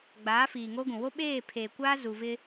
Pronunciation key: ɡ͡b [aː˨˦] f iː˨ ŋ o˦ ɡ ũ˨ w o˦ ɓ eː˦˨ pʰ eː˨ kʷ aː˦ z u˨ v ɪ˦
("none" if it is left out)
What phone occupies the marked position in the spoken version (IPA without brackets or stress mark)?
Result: aː˨˦